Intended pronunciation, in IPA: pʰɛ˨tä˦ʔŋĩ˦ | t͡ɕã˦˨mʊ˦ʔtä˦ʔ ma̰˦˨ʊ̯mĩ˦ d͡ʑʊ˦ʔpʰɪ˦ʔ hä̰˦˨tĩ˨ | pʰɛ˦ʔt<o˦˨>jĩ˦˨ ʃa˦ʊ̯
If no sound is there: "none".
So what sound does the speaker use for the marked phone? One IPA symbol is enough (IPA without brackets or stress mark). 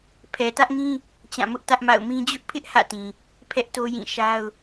o˦